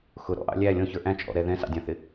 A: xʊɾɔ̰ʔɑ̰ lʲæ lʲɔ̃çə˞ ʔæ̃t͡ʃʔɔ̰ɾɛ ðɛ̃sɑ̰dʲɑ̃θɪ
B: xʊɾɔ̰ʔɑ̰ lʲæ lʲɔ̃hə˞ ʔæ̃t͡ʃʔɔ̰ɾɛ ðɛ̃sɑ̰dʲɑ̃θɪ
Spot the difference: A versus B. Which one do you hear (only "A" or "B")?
A